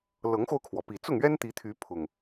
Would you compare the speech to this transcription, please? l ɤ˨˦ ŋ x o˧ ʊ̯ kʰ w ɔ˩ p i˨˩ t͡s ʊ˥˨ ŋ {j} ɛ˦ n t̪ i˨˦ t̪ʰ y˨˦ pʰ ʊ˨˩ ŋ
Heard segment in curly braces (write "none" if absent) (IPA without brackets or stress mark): ɥ